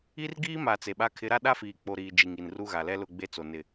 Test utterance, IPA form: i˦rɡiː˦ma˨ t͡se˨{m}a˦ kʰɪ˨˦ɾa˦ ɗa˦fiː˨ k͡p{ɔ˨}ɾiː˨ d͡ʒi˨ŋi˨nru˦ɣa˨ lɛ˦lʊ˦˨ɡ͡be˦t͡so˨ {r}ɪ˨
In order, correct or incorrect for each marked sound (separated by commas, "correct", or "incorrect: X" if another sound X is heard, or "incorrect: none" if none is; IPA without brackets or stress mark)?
incorrect: ɓ, incorrect: o˨, incorrect: n